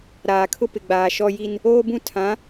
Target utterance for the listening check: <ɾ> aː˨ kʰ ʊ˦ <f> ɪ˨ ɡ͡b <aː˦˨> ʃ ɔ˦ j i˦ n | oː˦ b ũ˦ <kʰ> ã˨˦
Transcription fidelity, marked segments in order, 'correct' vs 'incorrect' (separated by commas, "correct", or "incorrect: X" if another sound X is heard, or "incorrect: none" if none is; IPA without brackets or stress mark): correct, incorrect: p, incorrect: aː˨, incorrect: tʰ